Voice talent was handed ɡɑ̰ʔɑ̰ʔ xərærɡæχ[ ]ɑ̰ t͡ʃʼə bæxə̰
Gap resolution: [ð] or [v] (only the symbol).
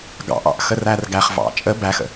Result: v